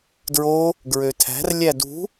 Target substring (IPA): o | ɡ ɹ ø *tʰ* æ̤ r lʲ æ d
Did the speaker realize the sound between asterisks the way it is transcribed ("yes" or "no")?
yes